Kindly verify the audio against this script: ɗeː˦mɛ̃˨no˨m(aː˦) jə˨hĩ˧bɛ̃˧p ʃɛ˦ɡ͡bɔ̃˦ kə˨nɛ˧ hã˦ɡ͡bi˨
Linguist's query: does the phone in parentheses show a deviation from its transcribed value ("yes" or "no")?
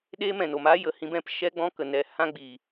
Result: no